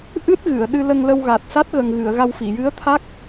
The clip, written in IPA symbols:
ʔ ɨ˦˥ t̚ ɣ ɨ˨˩˨ ə̯ ɗ ɨ˧ l ə˧ ŋ l ə˧ w ɣ a˨˩ t̚ s a˦˥ t̚ ɣ ə˨˩ ŋ ɣ ɨ˨˩˨ ə̯ ɣ a˧ w f i˨˩˨ j ɨ˧˥ ə̯ t̪ʰ a˦˥ k̚

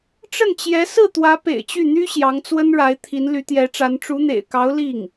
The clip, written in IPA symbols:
ʈ͡ʂ ə˥˩ n t͡ɕ j ɛ˧˥ s ɹ̩˥˩ t̪ w ä˧˥ p ḛ˨˩ ɪ̯ t͡ɕ y˥˩ n̪ y˥ ɕ j ɑ˧˥ ŋ t͡s w ə˥ n ɻ a˧˥ ɪ̯ t̪ʰ i˧˥ n l y˧˥ t̪ j ɛ˧˥ ʈ͡ʂ a˧˥ n ʈ͡ʂ u˧˥ n̪ ḛ˨˩ ɪ̯ k ɑ˧˥ ʊ̯ l i˥˩ ŋ

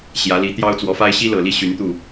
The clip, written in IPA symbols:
ɕ j ä˧˥ l i˧˥ t̪ j ɑ˥ ʊ̯ t͡s w ɔ˧˥ f a˥ ɪ̯ ɕ i˥ l ɤ˨˩ l i˥˩ ɕ y˧˥ n t̪ u˥˩

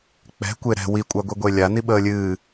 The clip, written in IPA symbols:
k͡p ɛ̤ kʷ e ɾ ɛ̤ w i kʷʼ a ɡʷ i ɡʷ e lʲ a n i ɓ əː lʲ ɨː

